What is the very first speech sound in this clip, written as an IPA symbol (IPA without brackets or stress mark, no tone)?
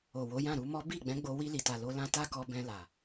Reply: o